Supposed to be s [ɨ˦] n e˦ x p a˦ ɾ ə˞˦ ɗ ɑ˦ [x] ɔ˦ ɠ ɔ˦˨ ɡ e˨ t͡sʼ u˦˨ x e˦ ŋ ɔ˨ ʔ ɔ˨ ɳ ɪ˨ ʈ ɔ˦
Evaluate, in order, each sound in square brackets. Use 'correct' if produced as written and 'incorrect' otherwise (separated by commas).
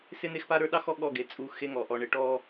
incorrect, correct